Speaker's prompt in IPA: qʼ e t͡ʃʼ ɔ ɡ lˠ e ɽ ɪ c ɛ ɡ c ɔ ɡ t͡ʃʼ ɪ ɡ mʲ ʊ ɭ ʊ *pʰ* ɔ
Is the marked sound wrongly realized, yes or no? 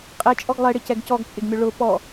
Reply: yes